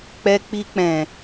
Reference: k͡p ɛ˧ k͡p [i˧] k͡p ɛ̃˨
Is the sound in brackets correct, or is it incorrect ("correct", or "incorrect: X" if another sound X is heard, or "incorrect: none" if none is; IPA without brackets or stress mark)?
correct